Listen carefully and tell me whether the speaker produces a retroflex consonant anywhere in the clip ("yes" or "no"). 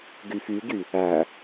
no